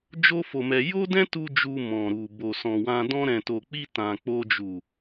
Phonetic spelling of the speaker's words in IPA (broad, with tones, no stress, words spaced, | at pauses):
d͡ʒo˦fo˧mɛ˧ jo˦dɛ̃˦tu˧ d͡ʒu˧mɔ̃˨ɾu˨ bo˨sɔ̃˨wã˧ dɔ̃˧ɾɛ̃˨to˨k͡pi˧ tã˨k͡po˧ d͡ʒu˨